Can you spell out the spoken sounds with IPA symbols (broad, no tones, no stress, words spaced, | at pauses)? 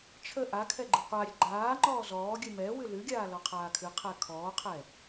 t͡ʃʰə ʔakʰɛ ɡ͡ǃɨqʷaɾʲə ɡ͡ǃaː ŋ͡ǃɔːzɔːɡʲɨ mɛwɨ lɨɡʲaː lɔqʰaːkʰɨqʰɛ kʰɔːqʰɛ